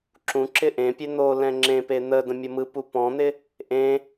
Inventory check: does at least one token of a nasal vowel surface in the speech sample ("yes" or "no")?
yes